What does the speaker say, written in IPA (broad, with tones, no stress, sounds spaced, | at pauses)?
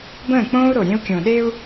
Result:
b ə̃ː˦˨ k͡p õː˦ u̯ ɾ o˨ ɾʲ ẽ˦ u̯ kʲ õ˨ ɗ e˦ u̯